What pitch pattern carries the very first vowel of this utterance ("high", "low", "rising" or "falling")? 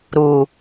low